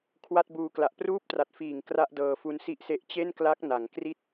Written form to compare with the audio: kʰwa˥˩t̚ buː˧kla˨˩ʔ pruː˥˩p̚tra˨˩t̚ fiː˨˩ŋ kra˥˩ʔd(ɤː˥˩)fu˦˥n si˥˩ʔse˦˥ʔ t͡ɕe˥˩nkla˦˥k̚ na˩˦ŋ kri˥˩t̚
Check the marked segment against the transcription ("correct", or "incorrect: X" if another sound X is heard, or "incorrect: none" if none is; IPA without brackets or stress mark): incorrect: ɤː˧